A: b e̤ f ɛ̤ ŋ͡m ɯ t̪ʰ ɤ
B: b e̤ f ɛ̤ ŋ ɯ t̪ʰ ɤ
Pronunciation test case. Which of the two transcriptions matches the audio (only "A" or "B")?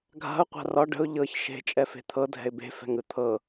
B